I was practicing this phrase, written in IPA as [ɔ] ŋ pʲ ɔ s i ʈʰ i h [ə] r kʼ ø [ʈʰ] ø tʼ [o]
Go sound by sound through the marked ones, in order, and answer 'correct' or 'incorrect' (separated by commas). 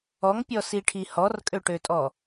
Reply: correct, incorrect, incorrect, incorrect